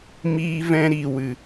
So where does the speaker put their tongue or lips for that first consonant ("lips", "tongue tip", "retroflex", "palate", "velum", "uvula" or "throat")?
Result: lips